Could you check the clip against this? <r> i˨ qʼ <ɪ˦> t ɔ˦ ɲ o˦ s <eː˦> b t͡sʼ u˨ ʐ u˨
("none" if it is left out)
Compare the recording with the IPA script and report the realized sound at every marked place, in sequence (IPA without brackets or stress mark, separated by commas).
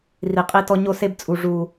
r, i˦, e˦